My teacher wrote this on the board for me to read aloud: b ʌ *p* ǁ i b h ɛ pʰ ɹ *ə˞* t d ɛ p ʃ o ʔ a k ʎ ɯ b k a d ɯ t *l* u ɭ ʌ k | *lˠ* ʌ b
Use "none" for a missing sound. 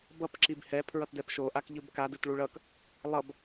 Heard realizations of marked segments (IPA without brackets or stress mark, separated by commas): p, ʌ, ɭ, lˠ